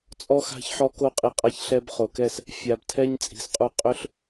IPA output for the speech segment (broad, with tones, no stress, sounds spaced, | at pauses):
t͡sʼ ɔ˧ x a̤˧ ç ħ ɔ˧ k o˧ qʼ i˨ qʼ a˧ ç ɬ ɛ˧ b χ o˨ k ɛ˦˨ s | fʲ a˨ b tʰ ɛ˦ ɲ t͡sʼ i̤˨ s qʼ u˧ qʼ ʏ˦ ɬ